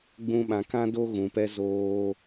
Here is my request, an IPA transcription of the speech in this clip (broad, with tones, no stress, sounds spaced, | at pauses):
ɡ͡b ũ˧ ɓ ã˨ k ã˦ d o˦ ɣ ũ˨ p ɛ˦ z oː˧